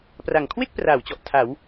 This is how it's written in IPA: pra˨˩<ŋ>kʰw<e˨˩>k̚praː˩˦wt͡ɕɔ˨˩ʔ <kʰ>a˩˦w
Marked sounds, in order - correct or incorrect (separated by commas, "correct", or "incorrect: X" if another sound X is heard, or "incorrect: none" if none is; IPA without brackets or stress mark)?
correct, incorrect: e˥˩, incorrect: tʰ